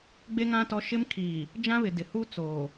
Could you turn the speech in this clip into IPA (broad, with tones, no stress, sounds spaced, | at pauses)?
ɡ͡b e˦ ŋ ã˦ t ɔ˦ ʃ ɪ˦ m kʰ iː˨ | d͡ʒ ã˦ β ɪ˨ d ɪ˨ h u˦ t͡s oː˨